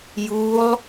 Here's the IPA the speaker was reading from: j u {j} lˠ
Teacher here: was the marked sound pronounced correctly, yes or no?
no